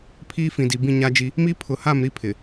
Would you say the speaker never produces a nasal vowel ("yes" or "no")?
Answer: no